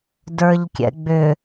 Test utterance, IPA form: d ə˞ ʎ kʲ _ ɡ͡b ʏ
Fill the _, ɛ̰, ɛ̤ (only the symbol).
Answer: ɛ̰